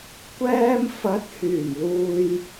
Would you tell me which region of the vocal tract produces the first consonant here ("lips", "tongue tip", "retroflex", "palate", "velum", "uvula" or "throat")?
velum